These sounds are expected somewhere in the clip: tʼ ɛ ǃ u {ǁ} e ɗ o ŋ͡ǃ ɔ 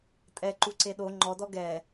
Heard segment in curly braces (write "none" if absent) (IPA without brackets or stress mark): ǀ